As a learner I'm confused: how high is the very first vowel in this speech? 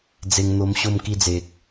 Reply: mid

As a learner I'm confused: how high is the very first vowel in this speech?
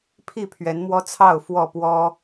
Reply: high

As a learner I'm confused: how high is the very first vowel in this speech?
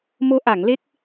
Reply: mid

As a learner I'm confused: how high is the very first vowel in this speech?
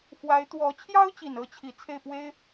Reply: low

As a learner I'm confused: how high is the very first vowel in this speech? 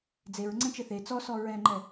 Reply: mid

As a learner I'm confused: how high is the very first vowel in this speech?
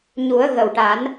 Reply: high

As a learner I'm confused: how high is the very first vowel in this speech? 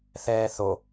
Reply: mid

